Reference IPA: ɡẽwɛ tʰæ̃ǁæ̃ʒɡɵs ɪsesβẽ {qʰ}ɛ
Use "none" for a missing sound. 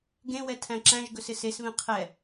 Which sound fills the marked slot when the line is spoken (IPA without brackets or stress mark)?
qʰ